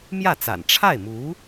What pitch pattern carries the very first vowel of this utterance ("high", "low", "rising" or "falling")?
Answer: falling